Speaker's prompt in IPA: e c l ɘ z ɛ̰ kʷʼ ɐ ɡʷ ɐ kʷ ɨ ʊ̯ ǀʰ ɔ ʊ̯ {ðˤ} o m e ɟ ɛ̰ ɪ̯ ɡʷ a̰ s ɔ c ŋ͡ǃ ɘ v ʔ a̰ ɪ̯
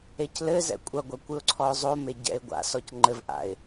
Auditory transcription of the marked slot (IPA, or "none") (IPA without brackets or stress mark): zˤ